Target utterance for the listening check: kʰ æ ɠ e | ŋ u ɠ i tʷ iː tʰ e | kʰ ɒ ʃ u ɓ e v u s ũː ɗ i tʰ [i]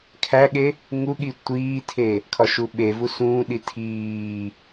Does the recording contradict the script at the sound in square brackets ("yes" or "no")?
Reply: yes